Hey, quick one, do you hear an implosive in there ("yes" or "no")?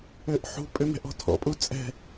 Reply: no